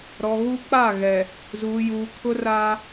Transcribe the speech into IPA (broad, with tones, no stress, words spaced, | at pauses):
ɾɔ˨ɣu˦ k͡pa˦˨ɣɛ˨ | zuː˨juː˨kʰʊ˦ ra˦